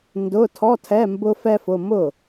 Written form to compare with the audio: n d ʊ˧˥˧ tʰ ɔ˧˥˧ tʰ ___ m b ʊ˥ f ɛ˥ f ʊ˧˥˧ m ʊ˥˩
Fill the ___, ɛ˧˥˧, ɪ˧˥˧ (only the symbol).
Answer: ɛ˧˥˧